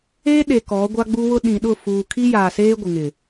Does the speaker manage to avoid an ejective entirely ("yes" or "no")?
yes